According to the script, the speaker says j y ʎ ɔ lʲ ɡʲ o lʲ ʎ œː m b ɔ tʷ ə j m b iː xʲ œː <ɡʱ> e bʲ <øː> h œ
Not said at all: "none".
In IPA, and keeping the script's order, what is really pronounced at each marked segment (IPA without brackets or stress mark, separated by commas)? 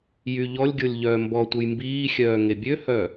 ŋ, ø